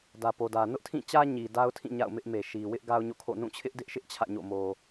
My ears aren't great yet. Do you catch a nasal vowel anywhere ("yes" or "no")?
yes